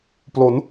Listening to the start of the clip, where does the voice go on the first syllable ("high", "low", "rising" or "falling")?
rising